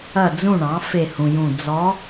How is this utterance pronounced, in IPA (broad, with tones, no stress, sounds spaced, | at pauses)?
ɐ˦˨ d͡z ũ˦˨ ɳ ɑ̃˩˥ f e˦˨ h ũ˨ j ũ˦˨ d͡z ɔ˧˥